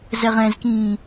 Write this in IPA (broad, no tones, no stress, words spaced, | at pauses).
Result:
zɛʁɛ̃zkĩː